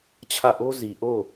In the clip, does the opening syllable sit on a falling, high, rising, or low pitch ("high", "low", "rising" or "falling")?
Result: falling